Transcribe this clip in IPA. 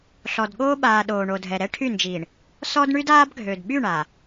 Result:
ɬ ɔ˨ d ɠ oː˦ ɓ aː˨ ɗ oː˨ ɳ o˨ dʱ ɛ˨ ɾ ɛ˦ ʈʰ y˦˨ n d͡ʒ iː˨ ɳ | s ɔ˦ d ɳ y˦ d aː˦ b ɡʱ ø˨ d ɓ y˦˨ ɳ a˨

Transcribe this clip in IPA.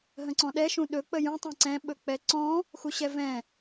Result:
ɦ ə̃ ǀ ɔ̃ ɗ ɛ ʃ ũ ɗ ɵ k͡p ə j ũ tˤ ɛ̃ ǀ ɛ̃ ɓ ɵ k͡p ɛ ǀ ɔ̃ | x u ɕ ɛ v ɛ̃

